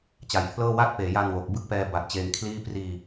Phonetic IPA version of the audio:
t͡ɕ a˩˦ j pʰ l ɤː˥˩ w a˥˩ t̚ p eː˩˦ j a˧ n w o˨˩ k̚ b ɯ˥˩ k̚ p ɛː˧ b a˨˩ t̚ t͡ɕ eː˧ ŋ kʰ l iː˥˩ p r iː˧

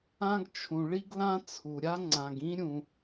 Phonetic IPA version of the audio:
ã˥ ɡ t͡ʃʰ ũ˩ ɭ i˥ ɡ l ã˥ t͡sʰ u˩ ɾʲ a˥ ŋ͡ǀ ã˩ ɡ ĩ˥ ɾʲ ũ˩

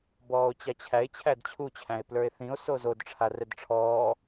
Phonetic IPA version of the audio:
b ɔː o̯ t͡ɕ a t͡ɕʰ æ e̯ t͡ɕʰ æ d t͡ɕʰ u t͡ɕʰ æ̃ e̯ p l ə˞ e̯ θ ĩ o̯ s o z o d ʈ͡ʂʰ a r ɛ d ʈ͡ʂʰ ɔː

